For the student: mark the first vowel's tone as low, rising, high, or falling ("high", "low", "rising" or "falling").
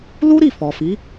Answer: high